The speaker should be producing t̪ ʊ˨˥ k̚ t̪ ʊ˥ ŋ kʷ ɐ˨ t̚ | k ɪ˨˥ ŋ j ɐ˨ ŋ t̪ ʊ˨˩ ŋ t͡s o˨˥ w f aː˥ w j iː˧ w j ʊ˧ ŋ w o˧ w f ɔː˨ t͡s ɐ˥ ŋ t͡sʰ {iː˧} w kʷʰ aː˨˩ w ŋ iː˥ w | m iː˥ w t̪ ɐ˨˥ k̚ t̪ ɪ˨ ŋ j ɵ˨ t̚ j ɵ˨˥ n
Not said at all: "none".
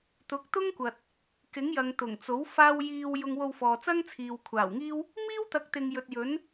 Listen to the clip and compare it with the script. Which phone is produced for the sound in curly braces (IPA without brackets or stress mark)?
iː˨